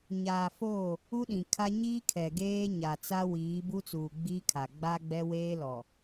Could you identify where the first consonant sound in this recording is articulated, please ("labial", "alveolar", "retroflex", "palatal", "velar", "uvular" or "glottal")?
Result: palatal